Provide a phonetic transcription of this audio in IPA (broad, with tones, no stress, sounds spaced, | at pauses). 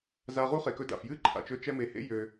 z a˧ ʁ u˦ χ e˨ k ɵ˧ d a̰˨ f j ɨ˦ ǃʰ a̰˨ t͡ʃ ɵ˧ t͡ʃ ɛ˧ m e˨ h ḛ˦ j ø˧